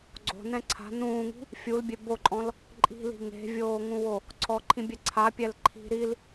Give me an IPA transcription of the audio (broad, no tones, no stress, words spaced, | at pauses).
ɡ͡ǀo̤nɛ̃ ǀʰa̤ nũːŋi̤ | fʲulbʲe boǃʼɔ̃l | ǃʼi̤li̤ ŋe̤vʲoːŋũwo | ǀʰɔǃʰĩbʲɛ ǀʰapʲɛl ǃʰi̤ ɾil